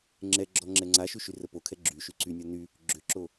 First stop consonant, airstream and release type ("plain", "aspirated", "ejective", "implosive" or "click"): click